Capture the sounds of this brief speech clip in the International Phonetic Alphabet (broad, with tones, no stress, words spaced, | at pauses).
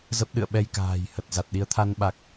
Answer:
zə˦˥p̚ɗɨ̰˧˨ə̯ɓɛ˧j ka̤ː˨˩jhə˨˩t̚ za˨˩t̚ɗi˨˦ə̯t̪ʰa˧n ɓa˨˩k̚